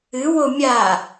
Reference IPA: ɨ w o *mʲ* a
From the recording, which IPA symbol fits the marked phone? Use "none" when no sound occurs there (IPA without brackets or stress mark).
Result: mʲ